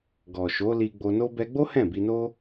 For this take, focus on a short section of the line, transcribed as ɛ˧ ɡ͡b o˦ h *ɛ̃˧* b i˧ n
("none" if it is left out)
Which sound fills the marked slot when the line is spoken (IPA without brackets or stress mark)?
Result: ɛ̃˦˨